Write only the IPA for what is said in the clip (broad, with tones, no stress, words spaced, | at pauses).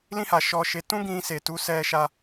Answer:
lĩ˧ha˨ ʃɔ˧ʃe˧ tũ˦ɡĩ˧ se˨tu˨˦ sɛ˧ʃa˧